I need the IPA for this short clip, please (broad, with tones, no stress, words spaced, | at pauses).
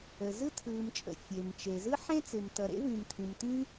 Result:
ə˩ zɯ˥tʰɯː˩mt͡ʃʼə̰˩ fʲe˩mt͡ʃe˩ zɯ˥ħẽ˥t͡sɪː˩m tʌ˩ɾḛ˥vĩ˩m t̪ʰĩ˩mt̪ĩ˥